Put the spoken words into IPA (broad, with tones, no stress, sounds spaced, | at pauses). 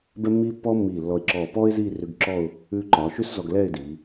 b ɛ˥ mː iː˥ pː ɔː˥ mː iː˧˩ lː ɔ˧˩ ɪ̯ ǁ ɔː˧˩ p ɔː˥ ɪ̯ z iː˥˧ r ʉ˧ ɡ ǁ ɔ˥˧ ʊ̯ | ʉː˧ ǃ ɒː˩˧ ʃ ʉ˥ s z ɔ˧ ɡ l ɛː˥˧ ɪ̯ d iː˩˧